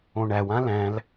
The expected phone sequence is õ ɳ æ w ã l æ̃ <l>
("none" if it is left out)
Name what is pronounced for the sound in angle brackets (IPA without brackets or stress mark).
l